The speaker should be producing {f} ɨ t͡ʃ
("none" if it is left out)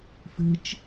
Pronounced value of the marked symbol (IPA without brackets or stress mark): f